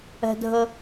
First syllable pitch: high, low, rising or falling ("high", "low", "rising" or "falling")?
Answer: high